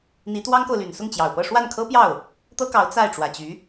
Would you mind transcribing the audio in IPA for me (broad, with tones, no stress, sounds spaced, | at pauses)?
n̪ i˧˥ t̪ w ɑ˥ ŋ k o˨ ʊ̯ l y˨˩ n s ʊ˥˩ ŋ t͡ɕ j ɑ˨˩ ʊ̯ p ɤ˥˧ ʂ w a˥˩ n kʰ ɤ˥ p j ɑ˥˩ ʊ̯ | t̪ ɤ˥ k ɑ˧˥ ʊ̯ t͡s a˥˩ ɪ̯ ʈ͡ʂ w ä˨˩ t͡ɕ y˧˥